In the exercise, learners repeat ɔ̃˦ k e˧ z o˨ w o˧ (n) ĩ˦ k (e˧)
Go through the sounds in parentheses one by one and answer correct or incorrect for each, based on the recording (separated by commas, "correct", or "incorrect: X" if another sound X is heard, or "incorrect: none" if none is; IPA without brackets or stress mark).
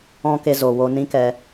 correct, incorrect: ɛ˧